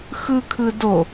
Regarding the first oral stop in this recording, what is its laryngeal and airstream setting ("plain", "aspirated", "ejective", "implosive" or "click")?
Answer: aspirated